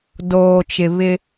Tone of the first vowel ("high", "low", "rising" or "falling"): low